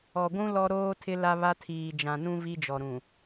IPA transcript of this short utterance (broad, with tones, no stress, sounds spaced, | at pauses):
ɔ˨ ɡʷ ũ˦ l ɔ˦ ɾ oː˦ tʰ ɪ˦ l a˦ β a˦ tʰ iː˨ d͡ʒ ã˨ n ũ˦ v i˦ d͡ʒ ɔ˨ ɾ ũ˨